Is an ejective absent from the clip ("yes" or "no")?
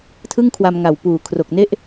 yes